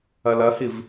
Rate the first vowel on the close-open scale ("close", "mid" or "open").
open